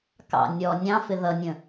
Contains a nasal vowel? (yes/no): yes